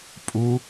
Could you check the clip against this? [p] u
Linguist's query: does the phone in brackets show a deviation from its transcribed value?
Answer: yes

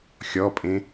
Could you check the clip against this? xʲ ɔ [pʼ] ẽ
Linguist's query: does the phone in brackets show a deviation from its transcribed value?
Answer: no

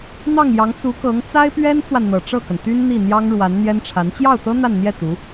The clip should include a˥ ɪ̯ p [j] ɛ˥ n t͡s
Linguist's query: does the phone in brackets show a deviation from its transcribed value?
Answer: yes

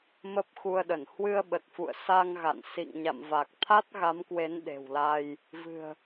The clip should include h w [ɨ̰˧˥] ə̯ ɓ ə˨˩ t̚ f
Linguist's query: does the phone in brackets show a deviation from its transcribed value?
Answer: yes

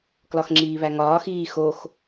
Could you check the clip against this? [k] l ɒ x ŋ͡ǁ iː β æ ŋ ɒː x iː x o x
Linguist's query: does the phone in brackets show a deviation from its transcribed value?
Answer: no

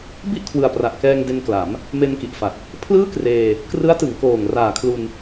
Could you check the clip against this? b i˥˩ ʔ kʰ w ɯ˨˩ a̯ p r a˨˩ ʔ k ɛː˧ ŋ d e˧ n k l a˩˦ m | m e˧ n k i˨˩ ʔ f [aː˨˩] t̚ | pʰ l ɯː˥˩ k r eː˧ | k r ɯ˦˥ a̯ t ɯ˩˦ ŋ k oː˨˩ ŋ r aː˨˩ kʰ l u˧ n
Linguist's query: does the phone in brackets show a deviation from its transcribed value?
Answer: yes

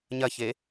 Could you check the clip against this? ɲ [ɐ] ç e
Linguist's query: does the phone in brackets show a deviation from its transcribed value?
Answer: no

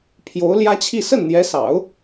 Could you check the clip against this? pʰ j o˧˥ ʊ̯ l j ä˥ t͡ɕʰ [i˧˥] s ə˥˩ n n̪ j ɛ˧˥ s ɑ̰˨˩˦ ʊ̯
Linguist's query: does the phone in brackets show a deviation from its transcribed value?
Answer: yes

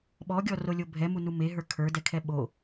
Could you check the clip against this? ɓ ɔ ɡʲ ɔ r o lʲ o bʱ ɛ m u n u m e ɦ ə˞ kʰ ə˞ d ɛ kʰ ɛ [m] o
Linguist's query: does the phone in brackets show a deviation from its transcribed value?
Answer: yes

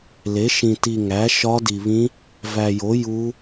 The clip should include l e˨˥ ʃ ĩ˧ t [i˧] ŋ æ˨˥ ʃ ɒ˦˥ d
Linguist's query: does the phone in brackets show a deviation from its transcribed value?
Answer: no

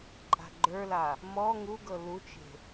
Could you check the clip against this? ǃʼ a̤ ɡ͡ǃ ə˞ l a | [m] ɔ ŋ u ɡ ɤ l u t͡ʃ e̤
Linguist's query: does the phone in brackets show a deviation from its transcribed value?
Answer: no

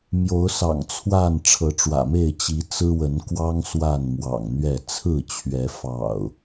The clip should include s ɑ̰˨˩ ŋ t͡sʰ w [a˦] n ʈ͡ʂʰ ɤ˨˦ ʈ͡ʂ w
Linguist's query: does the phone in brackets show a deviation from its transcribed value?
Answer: yes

